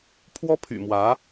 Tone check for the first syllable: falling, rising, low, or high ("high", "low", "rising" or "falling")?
high